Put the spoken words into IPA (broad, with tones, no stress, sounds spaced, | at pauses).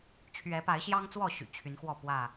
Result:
t͡ɕʰ ɥ ɛ˨˦ p a˨˦ ɪ̯ ɕ j ɑ˦ ŋ t͡s w ɔ˥˨ ɕ y̰˨˩ t͡ɕʰ y˨˦ n x w ɔ˥˨ p w ä˥˨